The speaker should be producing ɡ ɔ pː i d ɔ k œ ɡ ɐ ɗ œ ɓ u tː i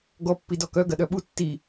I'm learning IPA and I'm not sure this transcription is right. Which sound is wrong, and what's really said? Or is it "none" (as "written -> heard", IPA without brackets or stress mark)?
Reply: none